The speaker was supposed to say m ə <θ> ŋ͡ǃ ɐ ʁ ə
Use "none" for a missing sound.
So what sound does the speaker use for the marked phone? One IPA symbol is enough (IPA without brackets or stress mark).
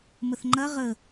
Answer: θ